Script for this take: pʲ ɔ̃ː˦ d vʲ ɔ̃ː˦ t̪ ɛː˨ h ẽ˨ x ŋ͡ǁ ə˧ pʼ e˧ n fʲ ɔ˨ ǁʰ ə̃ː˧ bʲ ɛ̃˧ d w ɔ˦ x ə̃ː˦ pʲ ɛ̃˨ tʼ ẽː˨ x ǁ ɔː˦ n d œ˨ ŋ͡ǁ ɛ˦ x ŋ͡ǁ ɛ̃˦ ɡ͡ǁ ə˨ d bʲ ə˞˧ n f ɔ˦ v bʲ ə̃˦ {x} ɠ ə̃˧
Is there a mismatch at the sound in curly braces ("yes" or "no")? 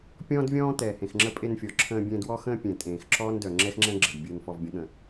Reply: yes